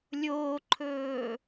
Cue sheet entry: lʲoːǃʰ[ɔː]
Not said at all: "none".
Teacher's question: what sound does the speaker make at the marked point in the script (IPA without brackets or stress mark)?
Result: ɵː